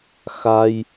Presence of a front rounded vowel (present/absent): absent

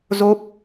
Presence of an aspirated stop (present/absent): absent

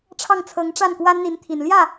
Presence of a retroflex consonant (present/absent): present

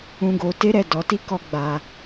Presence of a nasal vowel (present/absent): present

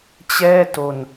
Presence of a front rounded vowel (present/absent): absent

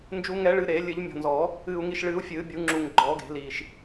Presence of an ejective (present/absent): absent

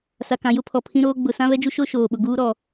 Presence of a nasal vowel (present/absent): present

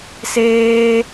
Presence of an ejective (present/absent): absent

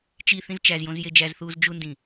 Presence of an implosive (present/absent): absent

